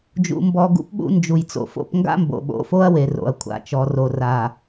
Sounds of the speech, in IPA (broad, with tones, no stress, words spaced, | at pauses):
d͡ʒṵ˨mbɔ˨ ɡṵ˦pɓṵ˦ nd͡ʒu˨jt͡so̰˨fo̰˦p ŋɡa̰˦mbo̰˨ɓo̰˨fo˦ɐ̯ we˨ro̰˨ɐ̯kʷʰa̰˨ t͡ʃɔ˨ro˨ra˨